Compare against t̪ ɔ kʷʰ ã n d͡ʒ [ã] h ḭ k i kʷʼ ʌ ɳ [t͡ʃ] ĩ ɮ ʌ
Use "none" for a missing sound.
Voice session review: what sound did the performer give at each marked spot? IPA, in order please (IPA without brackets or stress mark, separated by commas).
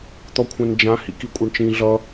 ã, t͡ʃ